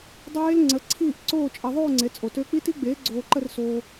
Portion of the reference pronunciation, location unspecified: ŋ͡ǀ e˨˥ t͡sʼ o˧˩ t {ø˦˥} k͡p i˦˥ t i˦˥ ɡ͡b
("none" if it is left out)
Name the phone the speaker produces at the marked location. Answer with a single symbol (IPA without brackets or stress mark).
ø˦˥